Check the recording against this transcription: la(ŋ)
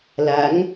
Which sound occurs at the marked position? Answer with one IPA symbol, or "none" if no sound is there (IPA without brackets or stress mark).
ŋ